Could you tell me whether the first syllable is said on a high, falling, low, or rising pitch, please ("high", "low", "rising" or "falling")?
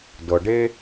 low